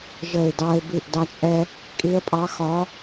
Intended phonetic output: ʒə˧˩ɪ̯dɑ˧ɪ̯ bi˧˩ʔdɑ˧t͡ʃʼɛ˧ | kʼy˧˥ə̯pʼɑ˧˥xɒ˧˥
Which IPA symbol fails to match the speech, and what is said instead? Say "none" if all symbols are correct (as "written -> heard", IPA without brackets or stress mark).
y˧˥ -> i˧˥